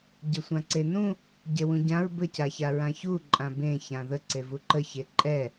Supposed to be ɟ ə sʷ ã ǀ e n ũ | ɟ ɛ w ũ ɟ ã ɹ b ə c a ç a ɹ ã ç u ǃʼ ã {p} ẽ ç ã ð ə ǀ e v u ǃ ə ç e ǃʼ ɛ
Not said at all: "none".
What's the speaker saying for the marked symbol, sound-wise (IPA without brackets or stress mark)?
b